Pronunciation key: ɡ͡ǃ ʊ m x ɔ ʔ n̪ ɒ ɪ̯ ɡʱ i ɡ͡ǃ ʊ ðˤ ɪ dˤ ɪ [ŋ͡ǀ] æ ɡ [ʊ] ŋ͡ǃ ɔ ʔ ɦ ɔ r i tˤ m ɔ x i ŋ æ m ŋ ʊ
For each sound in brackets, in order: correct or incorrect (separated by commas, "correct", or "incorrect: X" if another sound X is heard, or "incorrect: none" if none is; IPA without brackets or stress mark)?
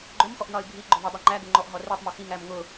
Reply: incorrect: ŋ͡ǃ, correct